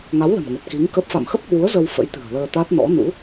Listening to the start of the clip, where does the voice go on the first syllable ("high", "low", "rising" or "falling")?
rising